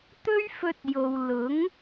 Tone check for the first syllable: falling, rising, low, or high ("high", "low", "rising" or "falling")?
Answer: high